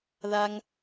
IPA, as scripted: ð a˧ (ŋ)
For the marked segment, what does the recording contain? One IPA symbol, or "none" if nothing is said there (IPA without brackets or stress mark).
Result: ŋ